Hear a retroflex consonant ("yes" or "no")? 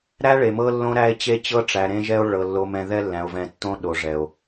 yes